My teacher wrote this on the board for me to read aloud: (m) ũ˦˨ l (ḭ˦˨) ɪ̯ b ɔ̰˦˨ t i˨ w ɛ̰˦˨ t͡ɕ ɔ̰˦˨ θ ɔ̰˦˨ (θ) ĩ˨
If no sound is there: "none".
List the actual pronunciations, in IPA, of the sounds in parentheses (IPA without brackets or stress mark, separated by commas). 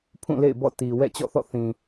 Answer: pʰ, ḛ˦˨, θ